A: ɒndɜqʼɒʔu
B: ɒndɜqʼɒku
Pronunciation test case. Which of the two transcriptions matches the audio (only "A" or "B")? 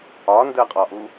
A